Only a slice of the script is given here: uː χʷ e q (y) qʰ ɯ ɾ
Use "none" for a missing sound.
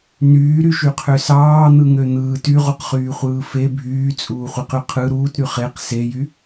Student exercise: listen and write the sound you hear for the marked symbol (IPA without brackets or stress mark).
y